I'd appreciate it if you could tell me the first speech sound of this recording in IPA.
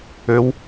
ø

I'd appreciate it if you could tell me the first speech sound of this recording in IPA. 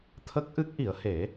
t̪ʰ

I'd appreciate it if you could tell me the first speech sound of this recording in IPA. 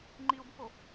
ŋ͡ǃ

